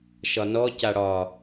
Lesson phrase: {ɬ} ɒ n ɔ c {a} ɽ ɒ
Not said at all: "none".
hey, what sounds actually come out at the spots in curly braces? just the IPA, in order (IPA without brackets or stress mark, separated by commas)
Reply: ʃ, a